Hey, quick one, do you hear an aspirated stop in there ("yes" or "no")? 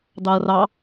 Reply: no